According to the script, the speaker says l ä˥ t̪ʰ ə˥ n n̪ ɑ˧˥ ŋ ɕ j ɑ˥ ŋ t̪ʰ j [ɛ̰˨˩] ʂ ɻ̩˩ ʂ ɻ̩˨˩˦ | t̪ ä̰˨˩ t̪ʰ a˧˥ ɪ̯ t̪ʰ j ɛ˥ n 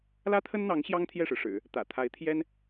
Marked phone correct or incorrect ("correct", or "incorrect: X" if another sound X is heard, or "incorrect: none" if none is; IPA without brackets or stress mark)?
incorrect: ɛ˥˩